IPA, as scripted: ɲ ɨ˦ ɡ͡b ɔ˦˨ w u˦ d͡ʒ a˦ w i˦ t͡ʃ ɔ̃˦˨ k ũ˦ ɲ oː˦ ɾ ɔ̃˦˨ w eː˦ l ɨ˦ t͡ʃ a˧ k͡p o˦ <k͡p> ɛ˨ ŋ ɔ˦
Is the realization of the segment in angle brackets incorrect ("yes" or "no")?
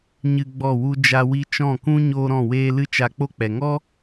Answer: no